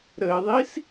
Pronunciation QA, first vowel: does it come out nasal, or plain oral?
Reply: oral